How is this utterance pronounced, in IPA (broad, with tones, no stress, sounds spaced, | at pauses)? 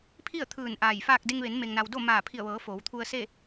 pʰ i˥˨ ə̯ t̪ʰ ɯː˧˩ n ʔ aː˧˩ j f aː˥˨ k̚ d e˧ ŋ ʋ e˩˧ n m e˩ ŋ n a˩ w d o˥˨ m aː˧˩ pʰ i˧˩ ə̯ ʋ ɤː˩˧ f o˩˧ w t̪ʰ u˧ ə̯ s e˥˨